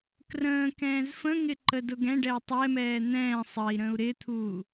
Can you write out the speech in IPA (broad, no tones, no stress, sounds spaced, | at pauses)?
k r ə̃ː k ɛ̃ː z f ə̃ ŋ ɪ ǃ ə d ʊ ɡ ɛ̃ ɖ ɛ u̯ tˤ ɛ m ɛː n̪ ɛ̃ː sˤ ə i̯ ɾ ə̃ u̯ ɾ ɪ t̪ʰ uː